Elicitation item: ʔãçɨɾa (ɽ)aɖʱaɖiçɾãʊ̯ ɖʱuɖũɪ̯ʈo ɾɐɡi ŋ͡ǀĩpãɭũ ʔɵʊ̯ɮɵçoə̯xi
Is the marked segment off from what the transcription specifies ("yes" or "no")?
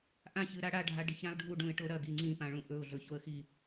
no